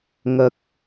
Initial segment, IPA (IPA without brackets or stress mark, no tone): ŋ